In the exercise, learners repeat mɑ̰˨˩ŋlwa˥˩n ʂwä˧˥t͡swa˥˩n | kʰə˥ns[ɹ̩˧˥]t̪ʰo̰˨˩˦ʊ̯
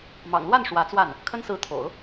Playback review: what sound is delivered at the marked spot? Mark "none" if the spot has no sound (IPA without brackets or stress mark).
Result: ɹ̩˧˥